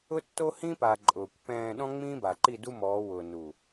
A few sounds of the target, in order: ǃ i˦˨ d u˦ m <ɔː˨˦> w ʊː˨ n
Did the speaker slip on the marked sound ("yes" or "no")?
no